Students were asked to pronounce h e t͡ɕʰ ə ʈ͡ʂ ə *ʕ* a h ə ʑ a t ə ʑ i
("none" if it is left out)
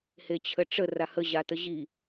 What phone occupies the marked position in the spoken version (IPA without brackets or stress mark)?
r